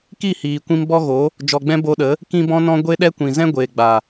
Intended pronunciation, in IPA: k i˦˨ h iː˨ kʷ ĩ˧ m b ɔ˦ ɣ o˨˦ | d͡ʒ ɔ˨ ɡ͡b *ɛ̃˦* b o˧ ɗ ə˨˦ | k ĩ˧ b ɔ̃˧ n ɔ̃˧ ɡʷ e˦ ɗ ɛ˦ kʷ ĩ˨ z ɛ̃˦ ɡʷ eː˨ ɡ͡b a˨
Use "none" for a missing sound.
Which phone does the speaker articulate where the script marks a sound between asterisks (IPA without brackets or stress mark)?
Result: ɛ̃˧